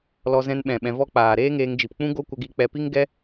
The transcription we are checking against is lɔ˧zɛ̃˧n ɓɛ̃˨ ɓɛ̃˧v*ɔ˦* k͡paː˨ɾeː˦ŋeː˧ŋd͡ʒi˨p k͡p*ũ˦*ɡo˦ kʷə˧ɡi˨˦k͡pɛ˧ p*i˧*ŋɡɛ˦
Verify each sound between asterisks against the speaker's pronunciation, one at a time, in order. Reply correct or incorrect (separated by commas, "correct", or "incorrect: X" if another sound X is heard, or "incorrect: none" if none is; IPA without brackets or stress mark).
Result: correct, correct, incorrect: i˦